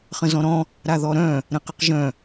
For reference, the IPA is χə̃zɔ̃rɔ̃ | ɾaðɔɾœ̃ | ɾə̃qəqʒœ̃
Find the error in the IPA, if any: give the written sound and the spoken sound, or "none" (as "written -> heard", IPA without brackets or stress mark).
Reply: r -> ɾ